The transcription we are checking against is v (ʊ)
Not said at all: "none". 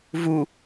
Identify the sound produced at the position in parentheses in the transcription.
u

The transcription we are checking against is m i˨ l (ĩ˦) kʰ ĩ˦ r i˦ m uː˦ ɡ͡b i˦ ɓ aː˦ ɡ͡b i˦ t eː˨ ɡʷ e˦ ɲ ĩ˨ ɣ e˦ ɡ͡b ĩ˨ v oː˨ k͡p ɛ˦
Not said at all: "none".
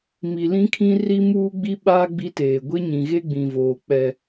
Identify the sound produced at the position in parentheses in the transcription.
ĩ˦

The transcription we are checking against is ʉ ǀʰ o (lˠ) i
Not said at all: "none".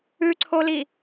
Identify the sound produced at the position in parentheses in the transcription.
l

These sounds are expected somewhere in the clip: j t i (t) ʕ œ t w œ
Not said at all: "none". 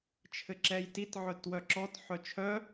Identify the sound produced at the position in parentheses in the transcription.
t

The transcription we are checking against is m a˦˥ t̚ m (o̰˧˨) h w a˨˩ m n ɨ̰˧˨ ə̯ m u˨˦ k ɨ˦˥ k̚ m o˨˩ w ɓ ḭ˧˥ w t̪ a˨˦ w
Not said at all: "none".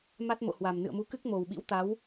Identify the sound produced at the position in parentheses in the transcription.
o̰˧˨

